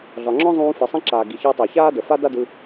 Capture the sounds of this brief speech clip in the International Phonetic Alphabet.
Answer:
ɮ ɒ˩ ŋ͡ǁ ɔ̃˥ zˤ ũː˧ f i˩ sˤ ĩ˥ ǁ aː˩ ɡ i˩ ç əː˧ tˤ a˩ ç aː˥ d ə˩ f a˥ d a˥ d ɯ˧

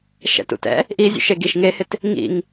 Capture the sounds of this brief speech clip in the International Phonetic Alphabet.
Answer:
ʃ ɛ̰ t ṵ t ɛ̰ | ʔ i zʲ ṵ ʃ e ɡ i ʃ ŋ e h ɪ t | ŋ ḭ ŋ

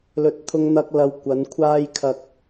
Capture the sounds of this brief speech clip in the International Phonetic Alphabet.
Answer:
l ɵ˨˥ t̚ t̪ʰ ʊ˧ ŋ n̪ ɐ˧ k̚ l ɐ˧ w kʷ ɐ˨˧ n kʷʰ aː˧ j kʰ ɐ˨ k̚

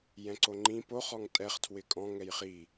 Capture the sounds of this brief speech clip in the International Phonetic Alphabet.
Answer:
j ɛ̃ ǀ o ŋ͡ǃ ĩ p o χ ɔ ŋ tʼ ɛ χ tʰ w ɪ kʼ ɔ̃ ŋ ɛ j χ i

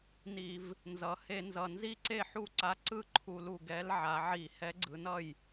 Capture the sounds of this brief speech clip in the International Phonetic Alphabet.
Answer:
n i˧˩˧ v | n z ʌ˩˧ h e˧˩˧ n z ʌ˨˩ n z i˥˩ ǀ e˥˩ ħ u˥˩ ǀ a˧˥ ǀ ɯ˥˩ ǃʰ u˧˩˧ l u˨˩ ɡ ɛ˧˥ l ʕ a˩˧ ʕ i˧˩˧ h ɛ˧˥ ɡ͡ǀ ɯ˩˧ n ʌ˥˩ j

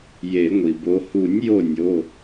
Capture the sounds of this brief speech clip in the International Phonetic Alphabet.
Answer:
j e˨˩˦ ŋʷ i˩ b o˨˦ h u˨˩˦ nʲ j o˧˩ nʲ o˩˧˩

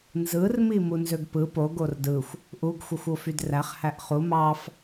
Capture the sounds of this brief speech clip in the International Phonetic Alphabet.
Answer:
n z ɯ r m i m u n z ø ɡ p ɯ p o ɡ o r d ɯ xʷ | ʔ u ɡ xʷ ɯ xʷ o f y d r æ χ h æ ʔ χ u m ɑ f

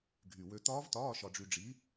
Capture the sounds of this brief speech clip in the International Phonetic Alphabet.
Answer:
ɡʱ y˨˩ w ø˧ t̪ ɒː˦˥ v t ɒː˧˥˧ ʃ ɒ˧ ɖ͡ʐ y˧ ɖ͡ʐ i˨˥

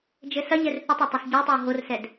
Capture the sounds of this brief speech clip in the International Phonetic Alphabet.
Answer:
d͡ʒ ɘ s ɐ ʎ ɛ r θ ɘ tˤ ɐ tˤ ɐ s ɟ ɛ tˤ o w ɦ o r s ɛ d

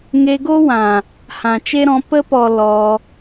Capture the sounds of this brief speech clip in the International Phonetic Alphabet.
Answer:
ŋ e˧ ɡ o˦ w ã˨ | h ã˨ t͡ʃ e˦ ɾ ɔ̃˨˦ p ə˧ p ɔ˨ l ɔ˧

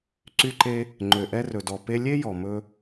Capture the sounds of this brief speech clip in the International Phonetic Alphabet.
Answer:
ǀ y˧ ǃ e˧ | ŋ͡ǃ ø˩ ʔ ɛ˧ r ɵ˩ d ɔ˩ p e˧ lʲ e˥ j ɔ˩ m ɵ˧

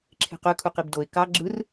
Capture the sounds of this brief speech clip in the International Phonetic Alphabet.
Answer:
ǁʰ e̤ q ø kʰ u q i b d o ɪ̯ k ɑ ɡ͡ǁ ɯ r

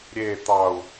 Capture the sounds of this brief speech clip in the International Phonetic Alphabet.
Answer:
ɾʲ e t̪ ɑ u̯

